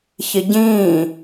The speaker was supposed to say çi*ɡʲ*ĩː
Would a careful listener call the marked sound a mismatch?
yes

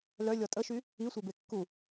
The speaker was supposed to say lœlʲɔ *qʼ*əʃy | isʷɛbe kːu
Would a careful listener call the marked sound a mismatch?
yes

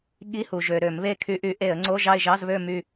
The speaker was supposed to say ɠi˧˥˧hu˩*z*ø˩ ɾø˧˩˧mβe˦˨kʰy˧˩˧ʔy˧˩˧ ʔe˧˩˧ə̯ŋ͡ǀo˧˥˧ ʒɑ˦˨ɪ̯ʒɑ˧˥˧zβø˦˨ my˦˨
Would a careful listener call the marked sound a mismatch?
yes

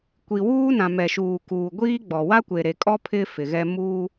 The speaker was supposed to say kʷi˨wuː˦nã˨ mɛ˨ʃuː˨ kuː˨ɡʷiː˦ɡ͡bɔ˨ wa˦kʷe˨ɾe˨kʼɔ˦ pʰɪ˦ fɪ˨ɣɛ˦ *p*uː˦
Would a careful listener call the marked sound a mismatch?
yes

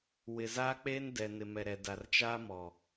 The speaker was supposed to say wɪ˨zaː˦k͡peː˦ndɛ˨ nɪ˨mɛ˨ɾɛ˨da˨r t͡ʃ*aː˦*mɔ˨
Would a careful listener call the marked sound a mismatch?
no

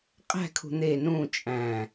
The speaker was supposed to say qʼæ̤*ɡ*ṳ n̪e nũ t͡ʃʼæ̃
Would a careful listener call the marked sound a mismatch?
yes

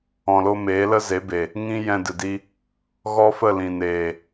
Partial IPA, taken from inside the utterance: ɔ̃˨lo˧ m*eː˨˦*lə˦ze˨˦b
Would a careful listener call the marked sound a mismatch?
no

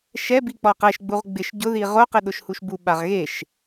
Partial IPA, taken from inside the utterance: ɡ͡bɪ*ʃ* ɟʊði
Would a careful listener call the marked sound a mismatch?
no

